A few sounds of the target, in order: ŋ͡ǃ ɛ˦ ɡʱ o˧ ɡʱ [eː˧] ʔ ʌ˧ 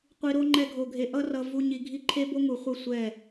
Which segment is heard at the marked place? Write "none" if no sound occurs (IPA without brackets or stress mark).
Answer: e˧